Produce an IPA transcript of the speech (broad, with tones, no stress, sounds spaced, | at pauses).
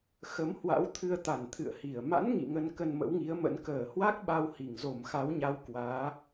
x ə˨˦ m h w a̰˧˥ w t̪ʰ ɨ˧ ə̯ t̪ a˧˩ n t̪ʰ ɨ̰˧˨ ə̯ h i˧˩ ə̯ m a̰˧˥ n ŋ ḭ˧˨ ŋ ə˧ n k ə˧ n m ə̰˧˥ w ŋ i˨˦ ə̯ m ə̰˧˥ n k əː˧˩ h w a˦˥ k̚ ɓ a˧ w h i˧˩ ŋ z o˧˩ m x a˨˦ w ɲ a˨˦ w k w aː˨˦